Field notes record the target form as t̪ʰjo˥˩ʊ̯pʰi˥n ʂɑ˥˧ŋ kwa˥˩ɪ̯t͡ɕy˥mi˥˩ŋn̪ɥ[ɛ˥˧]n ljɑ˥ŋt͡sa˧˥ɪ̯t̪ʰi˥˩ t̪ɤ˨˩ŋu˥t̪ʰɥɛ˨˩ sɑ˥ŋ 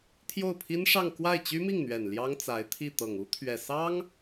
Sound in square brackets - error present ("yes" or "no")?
yes